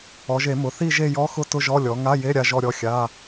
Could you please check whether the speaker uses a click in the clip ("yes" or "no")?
no